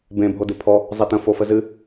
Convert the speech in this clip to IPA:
b ẽ bʱ o d ɨ pʰ ɔ | zˤ e t ə̃ f o f ə z ɨ

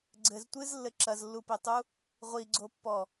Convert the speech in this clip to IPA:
ɡ͡ǀ ɘ z tʷ ɨ z lː ɘ ǁ ɐ z lː u p e tˤ u | ʁʷ i ɡ͡ǀ o pː ɔ

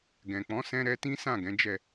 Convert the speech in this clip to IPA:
ɡ ɛ̃˨ k͡p ɔ̃˨˦ s ɛ̃˦ ɾ ɛ˦ t ĩ˦ s ã˦˨ ɡ ɛ̃˨˦ d͡ʒ ɛ˦˨

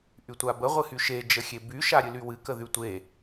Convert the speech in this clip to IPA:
ʔ y tʷ a b ə ʁʷ ɨ h y ʃ e d͡ʒ ə xʲ e b y ʃ a ɾʲ ɨ l y w ɨ k ə ð y tʷ e

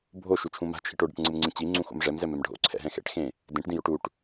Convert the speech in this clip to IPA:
bʱ o ʃ u t͡ʃʰ ũ m a̤ t͡ʃʰ i ʈ o ɖ ɛ̰ ʈ ŋ͡ǀ ɯ m ŋ͡ǀ ĩ t͡ɕ i ŋ͡ǀ ũ x o̰ m ʐ ɛ m z ɛ m ɛ m ɖʱ o̰ ǀʰ ɛ̰ ɦ ɛ̃ x ɛ̰ ʈ x ẽ | d ẽ ʈ d ĩ j o ʈ u ʈ

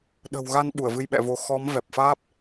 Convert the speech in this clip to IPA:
ɗ ə̤˨˩ w ɣ a˧ n ɓ u˧˩ ə̯ v ɨ˧ j ɓ ɛ̰˧˨ v o˨˦ x ɔ˨˦ m v ɛ˨˩ p̚ f aː˦˥ p̚

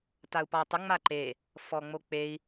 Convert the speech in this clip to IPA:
t a u̯ p ɔ u̯ tˤ ə ŋ͡m a ǃ e | f ɔ ŋ͡m o k͡p e i̯

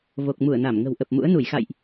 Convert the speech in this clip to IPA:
v o˨˩ k̚ m u˧˩ ə̯ n a˧˩ m ŋ ə̤˨˩ w ʔ ə˨˩ p̚ m ṵ˧˥ ə̯ n u˧˩ j x a̰˧˨ j ʔ

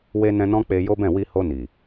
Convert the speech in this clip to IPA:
w e˧ n ɛ̃˧ n ɔ̃˦ k͡p e˧ j o˦ b ɛ̃˦˨ w i˧ h o˧ n i˨

